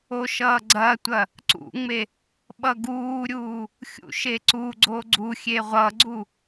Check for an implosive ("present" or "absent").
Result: present